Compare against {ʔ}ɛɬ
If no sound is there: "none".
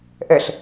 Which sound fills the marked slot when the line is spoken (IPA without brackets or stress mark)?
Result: ʔ